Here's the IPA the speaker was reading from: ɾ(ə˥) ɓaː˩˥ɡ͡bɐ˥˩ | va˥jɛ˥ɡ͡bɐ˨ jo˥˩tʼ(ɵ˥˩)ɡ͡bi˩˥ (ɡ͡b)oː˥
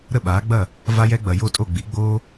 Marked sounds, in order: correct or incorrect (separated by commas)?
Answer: incorrect, incorrect, correct